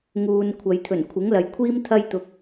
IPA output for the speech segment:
ŋuː˨n kʷʰɐ˨jt̪ʰɵ˨˩n kʷʰɪ˨˥ŋlɐ˨jkʷʰiː˥m t̪ʰɐ˥jt̪ʊ˧k̚

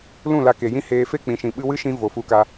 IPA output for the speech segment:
lũ˦˨la˧ke˨ jĩ˦heː˧ fe˦˨k͡pĩ˨ʃĩ˨ ɓɨ˧wɨ˦ʃĩ˧ vo˨fu˧ka˧

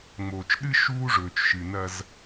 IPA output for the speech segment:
ŋ͡moː˨t͡ʃɗɨ˦ ʃuː˦ʐɵː˨t͡ʃʃɨ˨ nɐ˦z

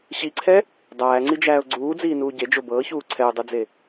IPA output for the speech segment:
ɕiǀʰɛ | dˤæːŋ͡ǀid͡ʒæːʊ̯ ɡ͡ǀuːd͡ziːnuː ɟed͡ʒo bɤːçuː ǀʰɛʊ̯dˤud͡ze

